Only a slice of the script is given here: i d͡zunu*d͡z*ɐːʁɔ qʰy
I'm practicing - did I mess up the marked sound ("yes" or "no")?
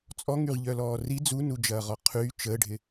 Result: yes